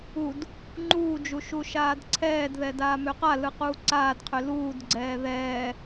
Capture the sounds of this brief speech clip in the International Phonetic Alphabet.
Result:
ud | ŋ͡ǃuːd͡ʒu ʃuʃaːdǀʰɛːdðɛ daːmøqalɯ quːǀaːdqʰø luːdɡ͡ǀɛː ðɛː

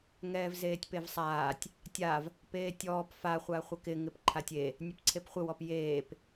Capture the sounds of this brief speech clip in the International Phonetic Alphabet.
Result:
ŋɛːvzeːtʲpevsˤaːtʲ | tʲav | peːtʲɔːp fa χʷaχʷɪkɪ ŋɪpǃʰatʲe | nʲepǀʰepχʷɪ wɔpjeːp

